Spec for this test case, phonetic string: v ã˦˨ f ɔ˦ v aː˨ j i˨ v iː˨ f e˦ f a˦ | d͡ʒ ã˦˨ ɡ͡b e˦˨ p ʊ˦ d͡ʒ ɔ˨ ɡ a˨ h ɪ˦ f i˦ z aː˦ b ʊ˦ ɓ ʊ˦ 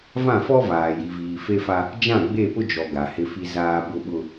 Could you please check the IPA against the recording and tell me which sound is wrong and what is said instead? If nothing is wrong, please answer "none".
none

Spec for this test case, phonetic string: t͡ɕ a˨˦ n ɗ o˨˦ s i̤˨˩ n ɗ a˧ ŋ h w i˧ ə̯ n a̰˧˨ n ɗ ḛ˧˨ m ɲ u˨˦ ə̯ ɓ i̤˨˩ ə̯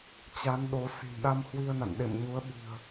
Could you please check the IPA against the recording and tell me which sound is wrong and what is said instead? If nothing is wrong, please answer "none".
ŋ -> m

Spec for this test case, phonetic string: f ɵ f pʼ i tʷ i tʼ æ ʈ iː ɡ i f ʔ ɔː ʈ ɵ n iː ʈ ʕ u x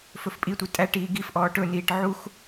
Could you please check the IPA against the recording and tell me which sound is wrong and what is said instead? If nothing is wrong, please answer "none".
none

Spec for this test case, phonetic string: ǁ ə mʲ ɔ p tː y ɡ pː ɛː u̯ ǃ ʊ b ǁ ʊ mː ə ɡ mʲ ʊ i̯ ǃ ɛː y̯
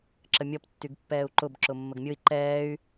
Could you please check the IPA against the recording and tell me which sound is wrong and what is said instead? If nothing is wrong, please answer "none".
none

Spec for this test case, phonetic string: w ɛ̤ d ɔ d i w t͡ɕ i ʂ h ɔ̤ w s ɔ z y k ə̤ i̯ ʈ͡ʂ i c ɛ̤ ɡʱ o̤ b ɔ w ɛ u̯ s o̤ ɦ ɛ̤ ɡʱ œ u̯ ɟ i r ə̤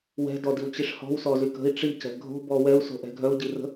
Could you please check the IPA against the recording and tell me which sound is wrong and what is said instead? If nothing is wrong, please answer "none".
ɦ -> ʔ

